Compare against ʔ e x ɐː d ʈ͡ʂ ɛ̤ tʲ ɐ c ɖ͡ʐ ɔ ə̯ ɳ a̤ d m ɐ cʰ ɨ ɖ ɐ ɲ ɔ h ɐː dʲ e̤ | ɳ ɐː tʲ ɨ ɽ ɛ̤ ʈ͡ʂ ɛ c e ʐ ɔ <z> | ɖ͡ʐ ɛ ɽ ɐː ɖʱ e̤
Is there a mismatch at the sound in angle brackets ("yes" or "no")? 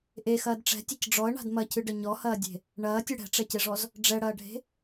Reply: no